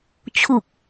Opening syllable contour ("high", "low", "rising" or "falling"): low